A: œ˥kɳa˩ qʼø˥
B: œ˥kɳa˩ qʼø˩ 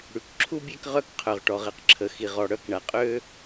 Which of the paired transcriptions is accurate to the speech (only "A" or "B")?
A